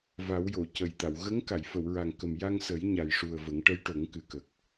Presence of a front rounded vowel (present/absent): absent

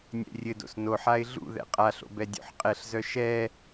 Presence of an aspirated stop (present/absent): absent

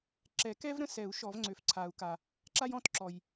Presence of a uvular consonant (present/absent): absent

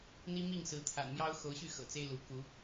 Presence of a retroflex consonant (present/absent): absent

